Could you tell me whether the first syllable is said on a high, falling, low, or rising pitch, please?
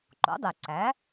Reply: rising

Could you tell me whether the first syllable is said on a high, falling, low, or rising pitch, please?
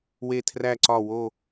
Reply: falling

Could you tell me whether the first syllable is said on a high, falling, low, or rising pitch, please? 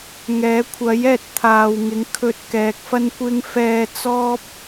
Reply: rising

